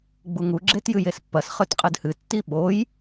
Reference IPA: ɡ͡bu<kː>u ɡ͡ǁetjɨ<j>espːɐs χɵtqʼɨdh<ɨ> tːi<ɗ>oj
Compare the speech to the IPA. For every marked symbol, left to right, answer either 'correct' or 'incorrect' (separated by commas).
incorrect, correct, correct, incorrect